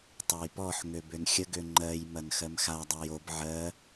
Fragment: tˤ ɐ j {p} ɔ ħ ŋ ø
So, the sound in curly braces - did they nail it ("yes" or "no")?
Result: yes